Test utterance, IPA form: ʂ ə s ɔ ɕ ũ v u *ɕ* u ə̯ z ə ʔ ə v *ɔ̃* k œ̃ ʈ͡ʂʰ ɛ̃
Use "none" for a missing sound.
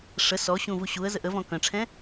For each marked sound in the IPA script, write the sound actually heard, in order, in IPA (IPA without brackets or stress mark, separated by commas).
ɕ, ɔ̃